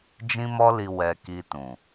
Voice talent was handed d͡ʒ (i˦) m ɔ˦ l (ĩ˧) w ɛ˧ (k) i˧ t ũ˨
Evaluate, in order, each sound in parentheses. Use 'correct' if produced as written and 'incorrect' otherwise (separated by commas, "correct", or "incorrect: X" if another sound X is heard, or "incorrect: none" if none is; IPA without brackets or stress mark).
incorrect: ĩ˦, incorrect: i˧, correct